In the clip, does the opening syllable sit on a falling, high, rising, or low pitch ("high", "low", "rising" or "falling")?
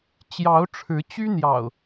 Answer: rising